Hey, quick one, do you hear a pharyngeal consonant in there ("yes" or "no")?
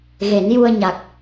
no